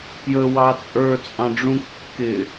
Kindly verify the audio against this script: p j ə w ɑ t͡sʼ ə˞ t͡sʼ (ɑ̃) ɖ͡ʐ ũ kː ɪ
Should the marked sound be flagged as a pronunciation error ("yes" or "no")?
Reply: no